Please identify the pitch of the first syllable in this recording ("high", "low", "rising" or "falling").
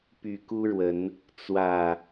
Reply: low